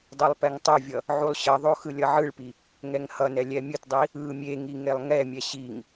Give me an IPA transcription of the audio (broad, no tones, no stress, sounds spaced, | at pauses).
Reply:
dˤ o lˠ p ɛ ŋ tˤ o vʲ ʌ | ʕ u lˠ ɕ ʌ ðˤ o x ɯ lʲ ʌ ʕ ɯ ɭ p i | ŋ ɛ ŋ h ʌ n ɛ lʲ ɛ mʲ ɯ t dˤ i | ɯ mʲ e ŋ i ŋ e lˠ ŋ ɛ mʲ ɛ ɕ i ŋ